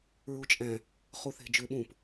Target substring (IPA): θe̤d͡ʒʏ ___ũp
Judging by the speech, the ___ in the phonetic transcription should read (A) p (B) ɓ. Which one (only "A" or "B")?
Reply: B